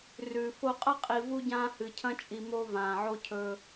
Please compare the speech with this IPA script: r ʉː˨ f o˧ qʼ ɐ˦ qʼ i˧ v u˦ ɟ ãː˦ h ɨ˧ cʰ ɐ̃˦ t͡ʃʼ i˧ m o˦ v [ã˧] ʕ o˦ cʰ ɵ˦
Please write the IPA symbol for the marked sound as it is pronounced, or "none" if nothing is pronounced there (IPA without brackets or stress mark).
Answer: ãː˧